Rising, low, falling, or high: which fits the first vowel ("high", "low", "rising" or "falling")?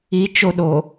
high